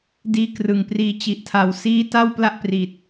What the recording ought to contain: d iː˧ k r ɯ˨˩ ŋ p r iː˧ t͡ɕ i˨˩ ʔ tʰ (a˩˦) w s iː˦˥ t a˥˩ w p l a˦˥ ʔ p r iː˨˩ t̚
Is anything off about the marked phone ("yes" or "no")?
no